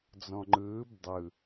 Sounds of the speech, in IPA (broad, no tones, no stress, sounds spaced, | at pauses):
d͡z ɔ̃ ŋ͡ǃ ɯː b dˤ ɯ